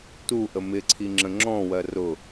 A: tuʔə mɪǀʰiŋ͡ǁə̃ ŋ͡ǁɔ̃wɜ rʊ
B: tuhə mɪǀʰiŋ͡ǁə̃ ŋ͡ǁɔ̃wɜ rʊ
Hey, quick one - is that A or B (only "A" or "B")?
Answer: A